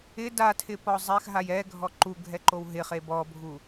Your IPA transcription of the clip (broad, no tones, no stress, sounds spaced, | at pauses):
ɪ d a tʰ ɪ p ɔ zˤ ɛ x ɦ a j ɛ ɡʱ ɔ ǃ u ɡʱ ɛ ǃ o w ɦ ɪ χ e b ɔ bʱ u